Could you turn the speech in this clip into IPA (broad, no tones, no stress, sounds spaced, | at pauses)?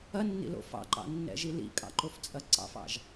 ɐ nː ḭ l o̰ f ɑ̰ ǃ ɑ̰ nː ɛ̰ ʒ i l ḭ kʼ ɑ̰ ǃ o f t͡sʼ ɐ ǀ ɑ̰ f ɑ̰ ʒ